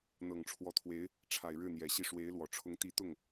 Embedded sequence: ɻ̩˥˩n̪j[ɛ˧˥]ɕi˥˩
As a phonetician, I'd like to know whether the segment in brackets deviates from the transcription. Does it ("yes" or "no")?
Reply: yes